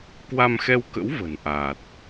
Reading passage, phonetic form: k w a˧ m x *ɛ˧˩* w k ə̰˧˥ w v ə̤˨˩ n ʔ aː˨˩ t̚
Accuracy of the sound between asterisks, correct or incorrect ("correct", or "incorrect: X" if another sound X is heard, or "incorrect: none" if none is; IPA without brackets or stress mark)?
incorrect: ɛ˧